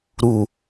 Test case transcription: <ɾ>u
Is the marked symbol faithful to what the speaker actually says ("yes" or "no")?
yes